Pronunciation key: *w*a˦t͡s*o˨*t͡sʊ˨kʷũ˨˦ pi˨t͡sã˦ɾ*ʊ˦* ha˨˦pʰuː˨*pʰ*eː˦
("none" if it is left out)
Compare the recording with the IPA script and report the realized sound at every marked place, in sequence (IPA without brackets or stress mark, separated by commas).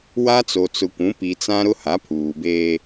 w, o˨, ʊ˦, b